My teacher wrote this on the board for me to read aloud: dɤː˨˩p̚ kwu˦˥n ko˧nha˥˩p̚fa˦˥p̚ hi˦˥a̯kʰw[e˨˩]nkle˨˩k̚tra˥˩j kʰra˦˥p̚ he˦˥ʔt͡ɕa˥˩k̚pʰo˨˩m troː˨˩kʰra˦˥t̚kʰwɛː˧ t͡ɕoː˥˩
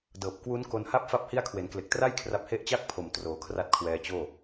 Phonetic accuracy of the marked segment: incorrect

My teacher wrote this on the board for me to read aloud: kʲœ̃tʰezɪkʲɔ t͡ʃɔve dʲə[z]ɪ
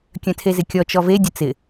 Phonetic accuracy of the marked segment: incorrect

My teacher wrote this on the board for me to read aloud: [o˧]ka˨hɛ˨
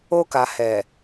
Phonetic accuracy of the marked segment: correct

